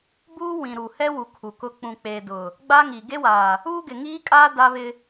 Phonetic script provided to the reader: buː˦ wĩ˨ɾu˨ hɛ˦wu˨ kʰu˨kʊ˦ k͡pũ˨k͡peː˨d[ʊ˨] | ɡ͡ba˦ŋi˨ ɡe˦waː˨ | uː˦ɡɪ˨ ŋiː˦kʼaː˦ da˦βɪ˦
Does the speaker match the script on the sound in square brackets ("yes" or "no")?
yes